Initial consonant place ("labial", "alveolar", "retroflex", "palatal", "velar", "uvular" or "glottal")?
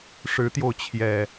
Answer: retroflex